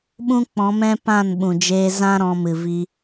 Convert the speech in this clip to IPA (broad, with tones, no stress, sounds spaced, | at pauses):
ɓ ũ˦ k͡p ɔ̃˨˦ m ɛ̃˦ p ã˦˨ n ɓ ũ˨ d͡ʒ eː˧ z ã˦ ɾ ɔ̃˧ m ɨ˨ v i˧